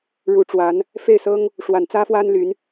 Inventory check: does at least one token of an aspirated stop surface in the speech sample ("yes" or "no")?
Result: no